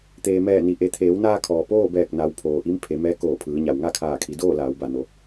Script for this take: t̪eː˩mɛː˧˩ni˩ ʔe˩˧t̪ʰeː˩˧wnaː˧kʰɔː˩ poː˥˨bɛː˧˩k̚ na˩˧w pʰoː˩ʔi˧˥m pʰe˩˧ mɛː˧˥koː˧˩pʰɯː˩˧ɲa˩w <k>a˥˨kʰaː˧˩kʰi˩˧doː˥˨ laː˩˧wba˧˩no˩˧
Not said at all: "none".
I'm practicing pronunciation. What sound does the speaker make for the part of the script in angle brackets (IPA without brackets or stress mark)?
ŋ